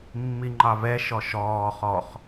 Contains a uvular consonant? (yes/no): yes